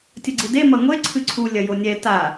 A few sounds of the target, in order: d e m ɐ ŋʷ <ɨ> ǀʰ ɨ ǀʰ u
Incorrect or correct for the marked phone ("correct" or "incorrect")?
incorrect